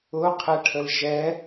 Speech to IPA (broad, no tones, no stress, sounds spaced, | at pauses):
ʊ qʰ ɛ ʈʰ ə l ʒ ɛ